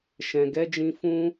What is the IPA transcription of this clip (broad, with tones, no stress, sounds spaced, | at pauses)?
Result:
ʃ ɛ̃˨ ɡ ɛ˨˦ d͡ʒ ĩ˧ f ũ˦